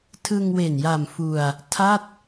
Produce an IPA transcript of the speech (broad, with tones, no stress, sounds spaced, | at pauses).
tʰ ɯ˧ ŋ w e˨˩ n j a˨˩ m f u˧ a̯ | tʰ a˥˩ t̚